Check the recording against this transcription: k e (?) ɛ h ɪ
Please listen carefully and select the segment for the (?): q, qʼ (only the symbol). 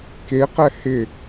q